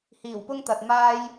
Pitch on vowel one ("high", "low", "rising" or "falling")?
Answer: low